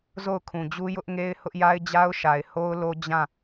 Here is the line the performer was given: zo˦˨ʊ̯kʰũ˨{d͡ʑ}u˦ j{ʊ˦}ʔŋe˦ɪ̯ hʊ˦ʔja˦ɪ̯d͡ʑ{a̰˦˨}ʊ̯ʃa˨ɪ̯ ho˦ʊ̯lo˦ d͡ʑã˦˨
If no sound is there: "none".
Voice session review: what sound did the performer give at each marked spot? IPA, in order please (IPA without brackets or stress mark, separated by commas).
d͡ʑ, ʊ˦, a˦